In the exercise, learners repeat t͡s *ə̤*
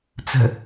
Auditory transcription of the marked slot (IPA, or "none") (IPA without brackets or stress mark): ə̤